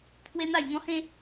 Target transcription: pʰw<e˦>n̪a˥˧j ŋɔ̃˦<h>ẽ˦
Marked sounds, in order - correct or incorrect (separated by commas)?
correct, correct